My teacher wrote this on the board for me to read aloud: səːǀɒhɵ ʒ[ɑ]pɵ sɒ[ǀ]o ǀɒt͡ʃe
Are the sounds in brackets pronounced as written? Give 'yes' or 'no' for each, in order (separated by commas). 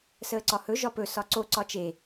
no, yes